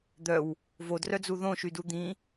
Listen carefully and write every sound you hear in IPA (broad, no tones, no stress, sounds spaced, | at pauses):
d̪ œ w | v o d r œ d͡z u ð õ ʃ y d u d̪ ĩ